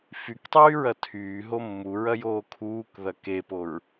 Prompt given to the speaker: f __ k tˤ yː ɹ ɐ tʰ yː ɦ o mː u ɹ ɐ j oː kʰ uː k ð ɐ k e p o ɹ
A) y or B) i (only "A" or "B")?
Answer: A